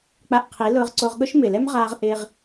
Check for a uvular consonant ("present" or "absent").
present